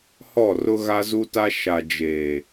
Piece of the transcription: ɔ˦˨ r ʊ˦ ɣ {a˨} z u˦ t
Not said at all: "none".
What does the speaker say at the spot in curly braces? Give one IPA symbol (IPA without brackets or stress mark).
a˦